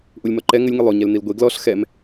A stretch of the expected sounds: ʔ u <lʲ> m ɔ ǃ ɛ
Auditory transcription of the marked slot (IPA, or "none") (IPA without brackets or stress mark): lʲ